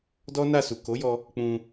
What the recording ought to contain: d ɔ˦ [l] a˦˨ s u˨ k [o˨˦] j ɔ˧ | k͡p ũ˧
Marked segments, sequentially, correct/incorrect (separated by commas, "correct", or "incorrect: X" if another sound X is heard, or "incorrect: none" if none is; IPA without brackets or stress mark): incorrect: n, correct